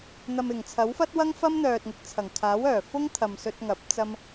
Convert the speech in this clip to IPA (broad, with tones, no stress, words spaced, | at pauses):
n̪ɐ˨mɪ˨˩ŋt͡sʰɐ˨˥wfɐ˥t̚ wɐ˥ŋfɐ˥mn̪œː˨t̚ŋɪ˨˥k̚ t͡sʰɐ˨˩ŋ kʰaː˨˥wœː˨˩ fʊ˥ŋ t̪ʰɐ˨msɵ˧t̚ŋɐ˨˥p̚ t͡sɐ˧m